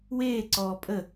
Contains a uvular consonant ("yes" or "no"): no